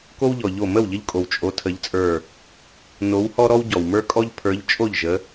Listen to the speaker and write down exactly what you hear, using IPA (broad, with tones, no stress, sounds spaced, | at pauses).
k o˦ w ʎ ɔ˩ ʎ o˧˩ m ə˥˩ w ʎ ə˦ ʎ kʼ o˩ w t͡ʃʼ o˨˦ tʰ ə˨˦ ʎ t͡sʼ ə˞˧˩ | n o˨˦ w h ɔ˦ ɾ ɔ˦ w ɟ ɔ˩ w m ə˞˦ kʼ ɔ˦ ʎ pʰ ə˞˨˦ ʎ t͡ʃʼ o˥˩ ʎ ʒ ə˨˦